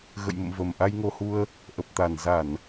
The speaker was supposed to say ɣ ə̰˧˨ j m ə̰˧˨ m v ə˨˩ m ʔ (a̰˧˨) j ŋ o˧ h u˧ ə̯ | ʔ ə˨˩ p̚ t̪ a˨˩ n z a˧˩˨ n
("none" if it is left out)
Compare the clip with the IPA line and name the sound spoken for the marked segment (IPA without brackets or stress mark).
a˧